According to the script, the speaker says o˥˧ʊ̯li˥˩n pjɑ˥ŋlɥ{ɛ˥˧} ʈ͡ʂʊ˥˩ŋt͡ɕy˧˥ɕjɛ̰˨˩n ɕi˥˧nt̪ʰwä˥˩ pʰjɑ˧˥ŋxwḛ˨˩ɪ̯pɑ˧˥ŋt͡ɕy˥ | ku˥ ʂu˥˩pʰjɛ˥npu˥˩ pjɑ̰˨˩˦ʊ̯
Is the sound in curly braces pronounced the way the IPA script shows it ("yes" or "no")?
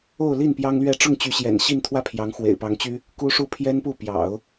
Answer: yes